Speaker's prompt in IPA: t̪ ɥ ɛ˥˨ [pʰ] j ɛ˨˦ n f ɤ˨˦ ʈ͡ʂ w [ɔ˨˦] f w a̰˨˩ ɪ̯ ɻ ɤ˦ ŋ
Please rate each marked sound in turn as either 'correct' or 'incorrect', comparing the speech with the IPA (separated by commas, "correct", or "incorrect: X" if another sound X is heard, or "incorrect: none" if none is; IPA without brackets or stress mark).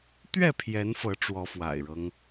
correct, correct